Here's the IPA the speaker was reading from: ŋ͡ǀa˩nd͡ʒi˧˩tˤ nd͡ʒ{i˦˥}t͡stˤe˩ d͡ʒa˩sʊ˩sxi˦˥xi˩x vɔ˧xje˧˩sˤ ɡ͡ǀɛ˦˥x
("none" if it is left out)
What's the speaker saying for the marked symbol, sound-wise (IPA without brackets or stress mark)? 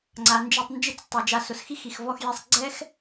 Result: ɪ˦˥